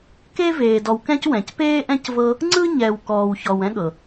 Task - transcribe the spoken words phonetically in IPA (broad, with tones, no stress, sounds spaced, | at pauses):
k e˥ v eː˨ d ɔ˨ w k ɛ̃˦ c w ɛ̃˩ c p eː˥ ʔ ɛ̃˥ c v ɤ˦ | ŋ͡ǀ ɯ˥ ɲ ɛ˨ w k ɔː˨ w ç ɔ˨ w ɛ̃˥ ɠ ɤ˩